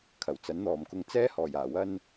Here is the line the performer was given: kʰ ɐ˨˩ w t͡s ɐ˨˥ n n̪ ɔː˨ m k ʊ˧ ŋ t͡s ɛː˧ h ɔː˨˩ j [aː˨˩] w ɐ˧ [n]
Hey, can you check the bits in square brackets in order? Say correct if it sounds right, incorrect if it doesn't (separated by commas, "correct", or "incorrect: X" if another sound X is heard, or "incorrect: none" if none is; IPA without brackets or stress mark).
correct, correct